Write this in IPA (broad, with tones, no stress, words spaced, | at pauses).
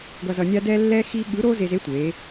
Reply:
ɡʌ˧zʌ˧ nʲa˥ dɛ˥lːɛ˥xi˥ ɠɯ˧˥ɾo˥ ze˧ze˧˥tʷe˩˧